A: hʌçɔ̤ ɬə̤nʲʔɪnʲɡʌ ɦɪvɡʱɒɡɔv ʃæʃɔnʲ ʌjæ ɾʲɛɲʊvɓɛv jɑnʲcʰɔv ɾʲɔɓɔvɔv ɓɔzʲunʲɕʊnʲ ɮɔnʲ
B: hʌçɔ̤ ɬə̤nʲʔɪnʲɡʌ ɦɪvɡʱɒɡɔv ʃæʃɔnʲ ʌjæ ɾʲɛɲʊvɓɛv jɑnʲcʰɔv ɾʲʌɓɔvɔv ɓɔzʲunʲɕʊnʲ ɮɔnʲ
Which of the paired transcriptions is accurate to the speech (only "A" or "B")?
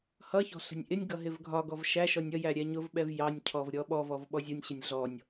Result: A